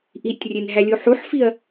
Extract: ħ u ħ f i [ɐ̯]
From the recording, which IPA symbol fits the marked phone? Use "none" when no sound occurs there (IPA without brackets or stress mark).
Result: ɐ̯